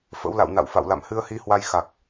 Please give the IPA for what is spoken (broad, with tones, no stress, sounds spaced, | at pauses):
f ə̰˧˥ w l a̰˧˨ w n a̰˧˨ w f a̰˧˨ w l a̰˧˨ m h ɨ˧ ə̯ h i˨˦ h w a˧ j x a˨˩ k̚